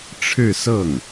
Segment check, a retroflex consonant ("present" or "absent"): present